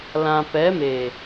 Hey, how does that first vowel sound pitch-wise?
low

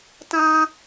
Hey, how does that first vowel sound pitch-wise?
high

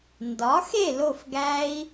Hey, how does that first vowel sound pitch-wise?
rising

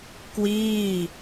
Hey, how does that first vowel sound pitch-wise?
falling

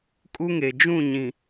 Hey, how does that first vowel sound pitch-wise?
high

